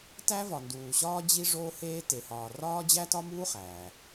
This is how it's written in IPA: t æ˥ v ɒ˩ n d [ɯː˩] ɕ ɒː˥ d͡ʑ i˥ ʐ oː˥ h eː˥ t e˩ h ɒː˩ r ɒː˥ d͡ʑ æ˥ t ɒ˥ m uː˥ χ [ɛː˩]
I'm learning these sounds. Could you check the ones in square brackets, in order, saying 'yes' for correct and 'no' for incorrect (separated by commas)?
no, no